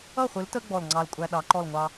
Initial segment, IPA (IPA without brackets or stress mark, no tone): ʌ